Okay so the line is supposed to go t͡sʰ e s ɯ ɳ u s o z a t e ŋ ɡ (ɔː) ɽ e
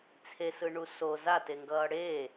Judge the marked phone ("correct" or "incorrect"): incorrect